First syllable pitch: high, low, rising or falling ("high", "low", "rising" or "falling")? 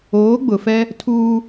rising